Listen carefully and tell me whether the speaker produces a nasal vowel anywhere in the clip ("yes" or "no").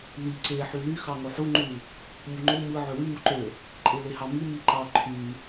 no